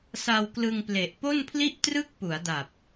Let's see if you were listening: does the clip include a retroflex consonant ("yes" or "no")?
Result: no